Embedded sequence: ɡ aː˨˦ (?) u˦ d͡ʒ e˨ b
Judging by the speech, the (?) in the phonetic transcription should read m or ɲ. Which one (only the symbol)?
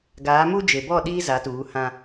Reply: m